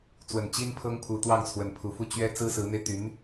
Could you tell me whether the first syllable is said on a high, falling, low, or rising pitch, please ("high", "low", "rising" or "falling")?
low